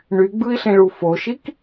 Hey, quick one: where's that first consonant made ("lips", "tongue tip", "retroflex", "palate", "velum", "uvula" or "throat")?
retroflex